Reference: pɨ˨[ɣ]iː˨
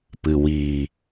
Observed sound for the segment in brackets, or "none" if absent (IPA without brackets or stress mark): w